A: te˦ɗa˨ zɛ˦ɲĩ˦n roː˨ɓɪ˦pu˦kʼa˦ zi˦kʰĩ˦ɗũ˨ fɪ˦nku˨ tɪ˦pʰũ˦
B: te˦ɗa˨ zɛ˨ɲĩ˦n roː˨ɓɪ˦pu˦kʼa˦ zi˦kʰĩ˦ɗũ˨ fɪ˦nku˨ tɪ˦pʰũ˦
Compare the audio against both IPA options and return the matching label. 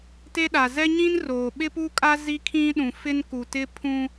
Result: A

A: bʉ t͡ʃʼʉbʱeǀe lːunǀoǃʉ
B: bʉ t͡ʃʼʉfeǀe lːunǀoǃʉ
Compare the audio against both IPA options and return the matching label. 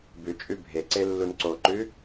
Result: A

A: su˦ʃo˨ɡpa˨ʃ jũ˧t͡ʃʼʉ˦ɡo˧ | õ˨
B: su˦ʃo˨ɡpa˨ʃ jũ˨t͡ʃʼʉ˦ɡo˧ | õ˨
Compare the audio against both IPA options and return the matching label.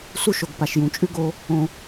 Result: B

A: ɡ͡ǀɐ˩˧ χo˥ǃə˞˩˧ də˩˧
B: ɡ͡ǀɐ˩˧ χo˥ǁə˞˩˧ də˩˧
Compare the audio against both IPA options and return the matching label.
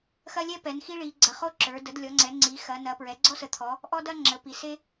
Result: B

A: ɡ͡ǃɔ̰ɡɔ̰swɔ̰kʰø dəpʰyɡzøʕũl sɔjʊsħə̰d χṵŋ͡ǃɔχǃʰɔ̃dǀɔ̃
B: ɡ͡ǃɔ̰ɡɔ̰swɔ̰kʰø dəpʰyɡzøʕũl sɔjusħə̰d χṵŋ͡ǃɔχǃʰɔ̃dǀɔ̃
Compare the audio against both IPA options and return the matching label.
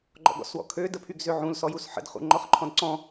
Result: B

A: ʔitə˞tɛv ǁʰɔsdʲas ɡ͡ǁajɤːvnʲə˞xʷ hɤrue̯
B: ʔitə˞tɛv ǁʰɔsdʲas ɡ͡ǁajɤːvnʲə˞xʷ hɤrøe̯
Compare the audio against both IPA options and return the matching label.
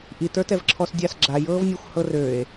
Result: B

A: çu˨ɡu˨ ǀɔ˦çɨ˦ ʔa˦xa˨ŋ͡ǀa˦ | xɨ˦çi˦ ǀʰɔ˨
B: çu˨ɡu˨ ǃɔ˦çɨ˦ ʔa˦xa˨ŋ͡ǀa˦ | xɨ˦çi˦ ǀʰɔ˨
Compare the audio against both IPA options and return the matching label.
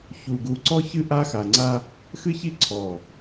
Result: A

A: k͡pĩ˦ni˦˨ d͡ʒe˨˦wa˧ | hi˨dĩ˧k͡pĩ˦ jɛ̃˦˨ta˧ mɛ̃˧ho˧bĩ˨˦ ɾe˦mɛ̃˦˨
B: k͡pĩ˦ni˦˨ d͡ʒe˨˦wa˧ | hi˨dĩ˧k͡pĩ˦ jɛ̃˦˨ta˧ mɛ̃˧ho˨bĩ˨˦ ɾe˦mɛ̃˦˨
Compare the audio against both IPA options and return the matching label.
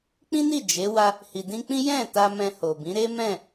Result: B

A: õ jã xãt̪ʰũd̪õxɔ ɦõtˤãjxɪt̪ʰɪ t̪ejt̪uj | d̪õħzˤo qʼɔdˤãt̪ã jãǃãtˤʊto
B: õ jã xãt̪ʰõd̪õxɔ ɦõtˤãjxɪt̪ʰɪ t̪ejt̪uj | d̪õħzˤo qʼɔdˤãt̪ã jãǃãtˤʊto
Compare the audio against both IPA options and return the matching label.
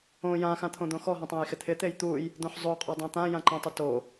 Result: B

